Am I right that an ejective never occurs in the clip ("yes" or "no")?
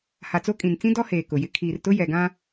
no